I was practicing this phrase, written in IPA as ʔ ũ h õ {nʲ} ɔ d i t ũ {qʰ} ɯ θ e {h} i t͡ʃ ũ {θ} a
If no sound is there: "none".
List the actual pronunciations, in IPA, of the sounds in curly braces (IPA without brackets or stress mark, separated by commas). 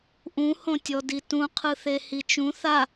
tʲ, qʰ, h, θ